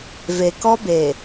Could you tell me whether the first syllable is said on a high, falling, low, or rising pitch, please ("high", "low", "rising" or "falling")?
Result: low